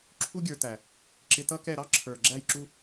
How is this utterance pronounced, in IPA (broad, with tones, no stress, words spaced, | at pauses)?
ǁʰu˦ɡʲə˞˧tæ˨ | ǁɪ˧tʌ˦kɛ˦˨ ɾɑ˦ ǁʰə˞˨ ɡ͡ǁæ˦˨jǁu˦